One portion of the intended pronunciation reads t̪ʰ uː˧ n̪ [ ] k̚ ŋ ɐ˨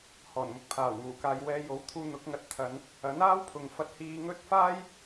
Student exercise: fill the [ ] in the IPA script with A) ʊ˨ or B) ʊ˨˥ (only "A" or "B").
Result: B